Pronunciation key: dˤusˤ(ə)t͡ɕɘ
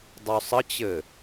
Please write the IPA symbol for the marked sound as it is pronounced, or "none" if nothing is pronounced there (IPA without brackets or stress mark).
ə